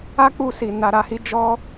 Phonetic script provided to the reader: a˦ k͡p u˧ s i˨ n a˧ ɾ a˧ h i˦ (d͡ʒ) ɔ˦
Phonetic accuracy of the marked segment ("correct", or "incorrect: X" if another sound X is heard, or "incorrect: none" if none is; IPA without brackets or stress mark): correct